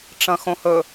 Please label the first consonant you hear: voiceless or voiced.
voiceless